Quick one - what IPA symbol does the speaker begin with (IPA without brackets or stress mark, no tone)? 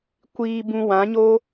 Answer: kʷ